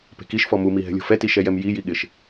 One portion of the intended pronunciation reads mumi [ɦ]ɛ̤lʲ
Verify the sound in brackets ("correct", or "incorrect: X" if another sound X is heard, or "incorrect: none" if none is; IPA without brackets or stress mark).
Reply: correct